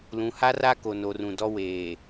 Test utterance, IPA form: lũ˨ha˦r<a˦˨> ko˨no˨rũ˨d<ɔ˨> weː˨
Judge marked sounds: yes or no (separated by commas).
no, no